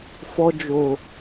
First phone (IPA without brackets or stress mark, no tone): f